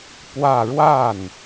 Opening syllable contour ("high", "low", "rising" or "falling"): falling